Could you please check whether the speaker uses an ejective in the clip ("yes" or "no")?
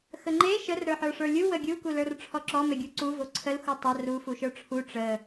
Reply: no